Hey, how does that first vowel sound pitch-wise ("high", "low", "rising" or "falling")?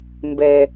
low